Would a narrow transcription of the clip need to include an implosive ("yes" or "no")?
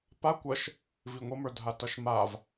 no